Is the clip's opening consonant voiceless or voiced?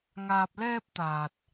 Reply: voiced